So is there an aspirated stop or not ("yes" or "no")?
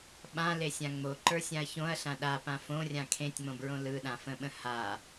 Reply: yes